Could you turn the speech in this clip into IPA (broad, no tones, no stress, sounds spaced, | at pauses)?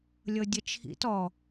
lʲ ɤ dʲ ə t͡ʃʰ ḭ t ɔ